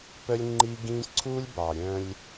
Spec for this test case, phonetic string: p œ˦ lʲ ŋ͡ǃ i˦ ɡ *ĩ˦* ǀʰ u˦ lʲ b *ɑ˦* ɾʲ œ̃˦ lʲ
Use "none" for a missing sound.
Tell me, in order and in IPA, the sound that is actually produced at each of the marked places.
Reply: ĩ˦, ɑ˨

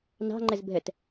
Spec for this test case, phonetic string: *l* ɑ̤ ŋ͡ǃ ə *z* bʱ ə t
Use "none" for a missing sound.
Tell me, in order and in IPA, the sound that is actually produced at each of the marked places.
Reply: n, z

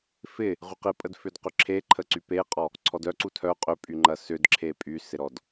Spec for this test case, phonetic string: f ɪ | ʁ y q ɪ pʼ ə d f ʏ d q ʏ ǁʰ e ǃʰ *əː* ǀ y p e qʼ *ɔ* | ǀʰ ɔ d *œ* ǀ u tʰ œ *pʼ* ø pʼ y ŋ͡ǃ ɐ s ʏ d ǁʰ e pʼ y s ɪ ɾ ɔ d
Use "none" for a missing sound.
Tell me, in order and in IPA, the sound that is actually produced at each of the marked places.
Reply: ə, ɔ, œ, qʼ

